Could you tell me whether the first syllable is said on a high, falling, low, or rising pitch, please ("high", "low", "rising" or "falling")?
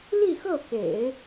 falling